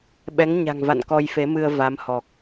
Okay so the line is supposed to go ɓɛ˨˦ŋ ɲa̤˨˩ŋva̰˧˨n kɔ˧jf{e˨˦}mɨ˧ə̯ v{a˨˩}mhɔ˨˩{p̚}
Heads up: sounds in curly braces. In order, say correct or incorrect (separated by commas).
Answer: correct, incorrect, incorrect